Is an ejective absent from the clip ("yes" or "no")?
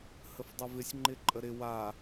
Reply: no